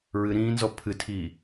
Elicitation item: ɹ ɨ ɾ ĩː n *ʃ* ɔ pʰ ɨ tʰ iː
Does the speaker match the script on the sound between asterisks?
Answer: no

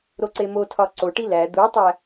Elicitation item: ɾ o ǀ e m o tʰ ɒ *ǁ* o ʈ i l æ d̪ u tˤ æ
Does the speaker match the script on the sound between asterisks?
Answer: no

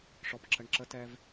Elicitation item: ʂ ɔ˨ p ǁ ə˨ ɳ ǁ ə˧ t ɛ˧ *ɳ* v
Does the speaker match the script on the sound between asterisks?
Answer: no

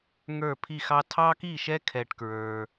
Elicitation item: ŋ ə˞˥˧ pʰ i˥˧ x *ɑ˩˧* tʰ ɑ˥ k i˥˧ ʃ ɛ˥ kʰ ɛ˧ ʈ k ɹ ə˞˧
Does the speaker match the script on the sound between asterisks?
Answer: no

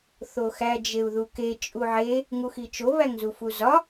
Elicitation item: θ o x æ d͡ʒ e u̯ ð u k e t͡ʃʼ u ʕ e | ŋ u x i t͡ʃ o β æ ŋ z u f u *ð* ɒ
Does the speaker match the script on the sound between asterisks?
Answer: no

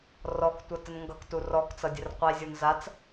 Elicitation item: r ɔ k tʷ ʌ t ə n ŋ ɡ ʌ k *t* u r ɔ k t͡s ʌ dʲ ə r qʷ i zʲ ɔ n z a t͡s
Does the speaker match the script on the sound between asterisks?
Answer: yes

